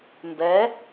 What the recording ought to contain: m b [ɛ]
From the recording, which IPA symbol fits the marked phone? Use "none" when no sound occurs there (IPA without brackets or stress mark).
ɛ